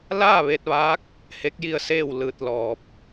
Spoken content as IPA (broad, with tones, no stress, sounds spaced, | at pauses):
l aː˥˨ ʋ e˧ t̚ ʋ aː˧˥ k̚ | h e˧˥ k̚ j i˥˨ ə̯ s eː˥˨ w l ɯː˧ t̚ l ɔː˧ p̚